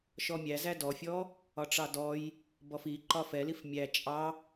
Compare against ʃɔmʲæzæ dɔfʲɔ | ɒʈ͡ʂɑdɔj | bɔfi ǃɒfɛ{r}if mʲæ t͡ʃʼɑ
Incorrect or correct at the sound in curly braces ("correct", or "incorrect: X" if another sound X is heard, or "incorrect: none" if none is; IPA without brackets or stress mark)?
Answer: incorrect: l